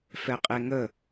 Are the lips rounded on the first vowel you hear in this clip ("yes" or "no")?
no